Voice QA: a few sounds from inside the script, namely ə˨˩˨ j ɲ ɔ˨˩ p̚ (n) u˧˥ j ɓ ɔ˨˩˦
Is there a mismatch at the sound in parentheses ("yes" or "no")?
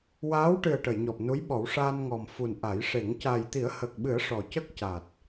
no